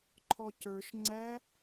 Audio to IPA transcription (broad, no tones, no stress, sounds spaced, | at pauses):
ǃʰ ɔ c ə˞ ʃ ŋ͡ǀ æ